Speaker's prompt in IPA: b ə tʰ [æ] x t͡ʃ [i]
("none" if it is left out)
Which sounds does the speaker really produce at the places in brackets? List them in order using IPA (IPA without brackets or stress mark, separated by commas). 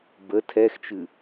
ɛ, ɨ